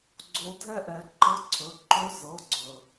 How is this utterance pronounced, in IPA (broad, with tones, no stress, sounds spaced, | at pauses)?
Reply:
ɡ͡ǀ o˧˥ dʱ ɛ˥ ʔ ɛ˩˥ ǃ ɤ˧˥ ǀʰ ɵ˩˧˩ ǃ ɵ˧˥ z ɤ˩˧˩ ɡ͡ǀ ɵ˩